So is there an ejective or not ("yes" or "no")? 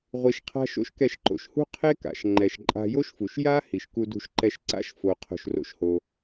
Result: yes